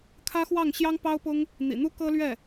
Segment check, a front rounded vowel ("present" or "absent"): absent